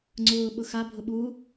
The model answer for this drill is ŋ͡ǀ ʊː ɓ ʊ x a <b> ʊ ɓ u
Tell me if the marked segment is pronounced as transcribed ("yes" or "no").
no